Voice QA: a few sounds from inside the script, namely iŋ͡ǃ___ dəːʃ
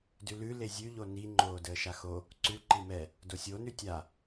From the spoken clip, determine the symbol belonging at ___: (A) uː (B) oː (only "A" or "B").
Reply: B